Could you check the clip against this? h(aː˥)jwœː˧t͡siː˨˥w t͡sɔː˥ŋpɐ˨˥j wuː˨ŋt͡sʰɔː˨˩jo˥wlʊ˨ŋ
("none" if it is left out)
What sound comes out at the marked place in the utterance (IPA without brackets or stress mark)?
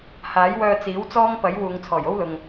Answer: aː˨˥